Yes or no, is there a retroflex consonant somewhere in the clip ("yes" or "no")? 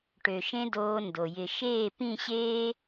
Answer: yes